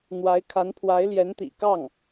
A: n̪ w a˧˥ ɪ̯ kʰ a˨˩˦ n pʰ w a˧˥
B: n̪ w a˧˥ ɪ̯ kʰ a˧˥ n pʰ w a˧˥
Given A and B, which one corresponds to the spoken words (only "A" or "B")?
B